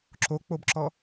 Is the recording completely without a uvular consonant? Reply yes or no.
yes